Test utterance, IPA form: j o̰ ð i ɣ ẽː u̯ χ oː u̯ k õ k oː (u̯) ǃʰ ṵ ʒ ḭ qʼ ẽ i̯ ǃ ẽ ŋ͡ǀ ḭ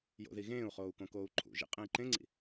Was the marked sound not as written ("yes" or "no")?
no